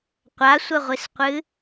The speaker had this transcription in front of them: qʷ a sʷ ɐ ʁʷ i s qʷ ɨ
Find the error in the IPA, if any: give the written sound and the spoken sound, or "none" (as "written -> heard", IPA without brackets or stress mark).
none